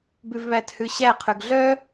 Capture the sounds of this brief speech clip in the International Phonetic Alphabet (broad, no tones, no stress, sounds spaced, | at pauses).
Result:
b ʉ v β æ t h ʉ ɕ æ qʰ ʉ ɡ ɮ œ